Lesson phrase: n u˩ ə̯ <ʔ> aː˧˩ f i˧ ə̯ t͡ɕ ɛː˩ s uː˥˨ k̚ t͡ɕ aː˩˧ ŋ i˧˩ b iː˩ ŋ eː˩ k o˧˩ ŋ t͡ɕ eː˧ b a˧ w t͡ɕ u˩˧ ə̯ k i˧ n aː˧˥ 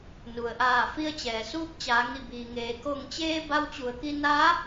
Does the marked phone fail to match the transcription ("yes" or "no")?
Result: no